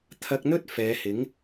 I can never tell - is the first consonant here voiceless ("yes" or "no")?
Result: yes